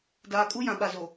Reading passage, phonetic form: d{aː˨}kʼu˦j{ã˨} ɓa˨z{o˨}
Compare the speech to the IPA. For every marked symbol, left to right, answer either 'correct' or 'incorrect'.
correct, correct, correct

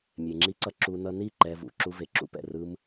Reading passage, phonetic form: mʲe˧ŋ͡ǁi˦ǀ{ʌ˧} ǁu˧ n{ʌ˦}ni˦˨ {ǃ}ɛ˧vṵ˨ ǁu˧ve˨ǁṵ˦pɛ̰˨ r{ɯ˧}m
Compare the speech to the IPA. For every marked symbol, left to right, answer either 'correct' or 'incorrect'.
incorrect, incorrect, correct, correct

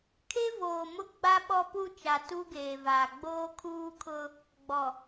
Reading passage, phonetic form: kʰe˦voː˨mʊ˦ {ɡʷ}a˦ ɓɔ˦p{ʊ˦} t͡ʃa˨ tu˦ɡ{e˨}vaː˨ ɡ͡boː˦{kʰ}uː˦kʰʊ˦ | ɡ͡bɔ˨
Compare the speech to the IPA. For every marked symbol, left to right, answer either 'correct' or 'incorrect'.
incorrect, incorrect, incorrect, correct

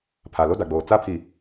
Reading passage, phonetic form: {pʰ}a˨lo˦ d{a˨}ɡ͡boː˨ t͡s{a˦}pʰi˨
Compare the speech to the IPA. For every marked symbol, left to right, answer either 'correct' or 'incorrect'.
correct, correct, correct

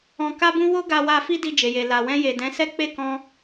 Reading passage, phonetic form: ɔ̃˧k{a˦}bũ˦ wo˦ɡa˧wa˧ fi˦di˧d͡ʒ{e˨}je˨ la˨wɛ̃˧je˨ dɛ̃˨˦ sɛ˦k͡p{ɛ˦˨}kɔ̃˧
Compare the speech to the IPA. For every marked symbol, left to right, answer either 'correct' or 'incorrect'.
correct, correct, incorrect

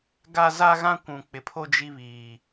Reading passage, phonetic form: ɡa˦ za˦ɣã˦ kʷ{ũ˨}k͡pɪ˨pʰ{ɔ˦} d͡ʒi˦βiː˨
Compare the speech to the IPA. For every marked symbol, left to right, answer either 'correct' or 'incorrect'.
correct, incorrect

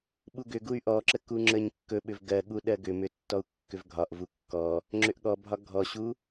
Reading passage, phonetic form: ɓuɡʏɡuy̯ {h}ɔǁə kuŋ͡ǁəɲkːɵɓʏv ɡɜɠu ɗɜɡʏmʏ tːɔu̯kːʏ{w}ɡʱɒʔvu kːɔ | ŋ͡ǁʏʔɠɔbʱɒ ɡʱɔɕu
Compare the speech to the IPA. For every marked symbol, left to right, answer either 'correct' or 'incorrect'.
incorrect, incorrect

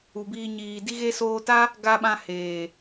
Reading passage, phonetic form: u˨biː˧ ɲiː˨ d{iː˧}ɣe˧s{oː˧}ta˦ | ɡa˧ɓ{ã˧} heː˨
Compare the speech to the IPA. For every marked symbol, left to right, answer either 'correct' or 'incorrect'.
incorrect, correct, correct

